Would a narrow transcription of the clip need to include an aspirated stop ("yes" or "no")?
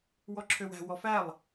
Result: yes